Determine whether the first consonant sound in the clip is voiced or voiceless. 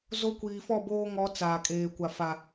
voiced